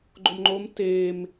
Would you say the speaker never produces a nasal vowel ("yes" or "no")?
yes